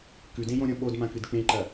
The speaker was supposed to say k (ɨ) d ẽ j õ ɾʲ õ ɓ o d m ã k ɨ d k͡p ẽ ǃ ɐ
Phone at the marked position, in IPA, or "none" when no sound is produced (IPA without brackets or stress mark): ʉ